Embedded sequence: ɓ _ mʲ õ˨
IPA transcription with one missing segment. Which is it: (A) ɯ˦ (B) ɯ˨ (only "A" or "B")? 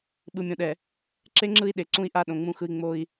B